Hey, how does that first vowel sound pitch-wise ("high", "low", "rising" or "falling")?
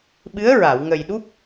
rising